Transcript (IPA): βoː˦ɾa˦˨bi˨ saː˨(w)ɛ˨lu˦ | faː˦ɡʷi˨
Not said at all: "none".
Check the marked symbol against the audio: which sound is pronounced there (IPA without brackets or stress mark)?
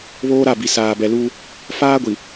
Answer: b